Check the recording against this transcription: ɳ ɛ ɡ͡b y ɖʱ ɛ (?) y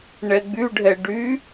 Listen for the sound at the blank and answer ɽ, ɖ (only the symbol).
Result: ɖ